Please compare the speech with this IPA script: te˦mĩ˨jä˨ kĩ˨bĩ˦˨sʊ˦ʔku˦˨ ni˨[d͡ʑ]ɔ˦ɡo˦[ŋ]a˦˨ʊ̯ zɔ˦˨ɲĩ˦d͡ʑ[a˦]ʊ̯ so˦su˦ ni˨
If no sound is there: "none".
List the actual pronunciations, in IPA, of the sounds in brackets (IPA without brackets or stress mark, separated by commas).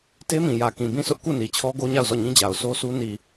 t͡ɕʰ, ɲ, a˨